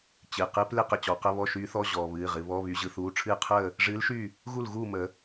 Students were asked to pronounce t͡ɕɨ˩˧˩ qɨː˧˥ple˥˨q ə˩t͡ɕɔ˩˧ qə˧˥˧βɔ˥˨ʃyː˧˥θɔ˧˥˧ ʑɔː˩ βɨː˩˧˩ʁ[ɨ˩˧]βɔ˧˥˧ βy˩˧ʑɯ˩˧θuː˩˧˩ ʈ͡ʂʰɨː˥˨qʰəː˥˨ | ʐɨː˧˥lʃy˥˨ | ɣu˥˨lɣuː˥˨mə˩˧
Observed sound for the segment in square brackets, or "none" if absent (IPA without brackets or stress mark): ɨ˩˧